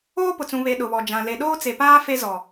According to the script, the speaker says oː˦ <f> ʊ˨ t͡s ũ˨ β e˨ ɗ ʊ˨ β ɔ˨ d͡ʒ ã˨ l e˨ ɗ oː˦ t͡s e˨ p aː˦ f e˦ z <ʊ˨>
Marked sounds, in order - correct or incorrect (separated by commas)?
incorrect, incorrect